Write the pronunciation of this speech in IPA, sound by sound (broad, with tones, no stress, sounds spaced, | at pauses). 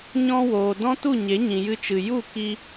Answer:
ɲ ɔ̃˦ w oː˨ d ɔ̃˦ t u˦˨ ɲ e˨˦ ɲ ĩ˨ j ɨ˧ t͡ʃ ɨ˨ j u˦˨ k i˧